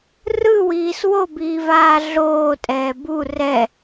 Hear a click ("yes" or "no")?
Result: no